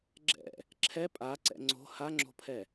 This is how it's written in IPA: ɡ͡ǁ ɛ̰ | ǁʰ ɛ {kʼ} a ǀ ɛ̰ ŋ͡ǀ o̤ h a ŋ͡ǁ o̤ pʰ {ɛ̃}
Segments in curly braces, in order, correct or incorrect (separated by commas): incorrect, incorrect